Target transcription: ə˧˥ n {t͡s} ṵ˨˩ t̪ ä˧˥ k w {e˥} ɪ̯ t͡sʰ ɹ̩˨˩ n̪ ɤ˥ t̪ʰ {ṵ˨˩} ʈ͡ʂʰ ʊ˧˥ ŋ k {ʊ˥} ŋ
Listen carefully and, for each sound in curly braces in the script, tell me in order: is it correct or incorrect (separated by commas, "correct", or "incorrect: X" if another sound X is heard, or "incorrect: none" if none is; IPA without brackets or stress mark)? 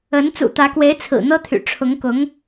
correct, incorrect: e˧˥, incorrect: y̰˨˩, incorrect: ʊ˧˥